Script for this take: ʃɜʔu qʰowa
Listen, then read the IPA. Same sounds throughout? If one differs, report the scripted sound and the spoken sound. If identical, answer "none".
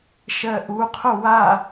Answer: none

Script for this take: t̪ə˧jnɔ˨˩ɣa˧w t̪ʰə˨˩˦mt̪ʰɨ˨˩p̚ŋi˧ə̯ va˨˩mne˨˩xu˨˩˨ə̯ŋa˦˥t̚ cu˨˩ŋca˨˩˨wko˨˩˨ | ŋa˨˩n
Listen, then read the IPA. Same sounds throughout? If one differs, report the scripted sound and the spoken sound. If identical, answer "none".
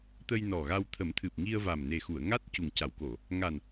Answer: none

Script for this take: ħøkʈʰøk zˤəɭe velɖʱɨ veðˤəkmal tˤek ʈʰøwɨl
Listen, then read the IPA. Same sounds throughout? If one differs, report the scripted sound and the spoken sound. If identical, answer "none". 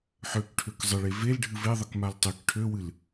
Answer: none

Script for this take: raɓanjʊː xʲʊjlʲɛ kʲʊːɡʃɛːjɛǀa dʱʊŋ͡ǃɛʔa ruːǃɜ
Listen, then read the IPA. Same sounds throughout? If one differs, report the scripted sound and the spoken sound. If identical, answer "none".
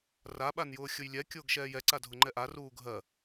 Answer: ǃ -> ɡʱ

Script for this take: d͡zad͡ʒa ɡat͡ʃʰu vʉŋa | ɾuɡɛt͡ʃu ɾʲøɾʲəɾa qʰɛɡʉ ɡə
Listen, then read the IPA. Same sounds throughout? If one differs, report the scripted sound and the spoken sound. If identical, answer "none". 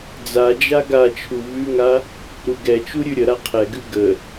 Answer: ø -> ʉ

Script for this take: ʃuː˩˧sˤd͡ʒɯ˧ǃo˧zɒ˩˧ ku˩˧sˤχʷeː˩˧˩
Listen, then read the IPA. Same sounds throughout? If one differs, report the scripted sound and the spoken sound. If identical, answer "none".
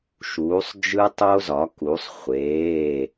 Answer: ǃ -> tˤ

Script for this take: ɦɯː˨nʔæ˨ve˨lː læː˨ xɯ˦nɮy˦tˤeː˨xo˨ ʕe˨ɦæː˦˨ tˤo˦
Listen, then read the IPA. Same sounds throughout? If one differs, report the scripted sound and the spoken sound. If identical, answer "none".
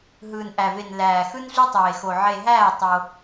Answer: lː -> n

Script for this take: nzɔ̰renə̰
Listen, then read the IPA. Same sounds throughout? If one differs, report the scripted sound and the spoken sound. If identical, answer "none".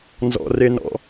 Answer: ə̰ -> ɔ̰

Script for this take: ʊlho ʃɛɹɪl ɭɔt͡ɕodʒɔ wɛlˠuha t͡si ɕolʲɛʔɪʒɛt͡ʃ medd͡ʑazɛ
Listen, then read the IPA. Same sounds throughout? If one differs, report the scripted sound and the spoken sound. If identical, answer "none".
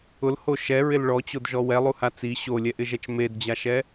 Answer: z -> ʃ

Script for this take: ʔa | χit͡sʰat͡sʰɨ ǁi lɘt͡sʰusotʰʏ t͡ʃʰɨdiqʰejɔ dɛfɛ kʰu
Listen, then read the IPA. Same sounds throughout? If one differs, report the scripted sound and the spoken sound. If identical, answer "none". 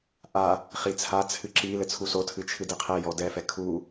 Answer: ʏ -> ɨ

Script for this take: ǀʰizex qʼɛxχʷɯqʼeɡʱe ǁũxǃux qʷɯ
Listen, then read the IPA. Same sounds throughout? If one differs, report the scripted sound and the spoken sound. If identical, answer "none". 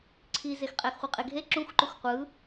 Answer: none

